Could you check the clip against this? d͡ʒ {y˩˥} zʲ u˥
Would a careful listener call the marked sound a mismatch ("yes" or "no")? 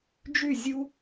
yes